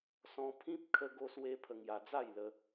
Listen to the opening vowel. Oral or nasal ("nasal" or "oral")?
nasal